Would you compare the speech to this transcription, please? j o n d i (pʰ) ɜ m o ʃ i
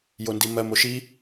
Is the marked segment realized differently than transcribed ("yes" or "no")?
yes